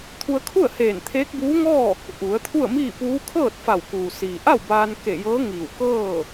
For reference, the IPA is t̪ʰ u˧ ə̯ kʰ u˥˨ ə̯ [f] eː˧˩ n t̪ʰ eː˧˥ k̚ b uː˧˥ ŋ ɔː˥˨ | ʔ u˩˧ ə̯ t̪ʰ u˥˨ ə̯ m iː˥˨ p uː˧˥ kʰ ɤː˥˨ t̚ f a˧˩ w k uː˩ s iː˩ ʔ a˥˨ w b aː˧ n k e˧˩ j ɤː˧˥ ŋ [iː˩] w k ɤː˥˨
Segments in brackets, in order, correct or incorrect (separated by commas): incorrect, incorrect